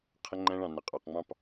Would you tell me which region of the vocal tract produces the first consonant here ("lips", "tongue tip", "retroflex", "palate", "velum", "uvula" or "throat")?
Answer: uvula